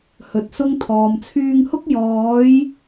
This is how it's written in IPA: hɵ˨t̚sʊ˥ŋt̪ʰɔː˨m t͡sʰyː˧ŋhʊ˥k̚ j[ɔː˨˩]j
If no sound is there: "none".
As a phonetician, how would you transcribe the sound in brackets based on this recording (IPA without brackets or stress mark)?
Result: ɔː˨˥